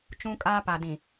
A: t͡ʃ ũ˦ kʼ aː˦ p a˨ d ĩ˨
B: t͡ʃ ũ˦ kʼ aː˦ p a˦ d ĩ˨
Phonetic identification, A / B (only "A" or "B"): A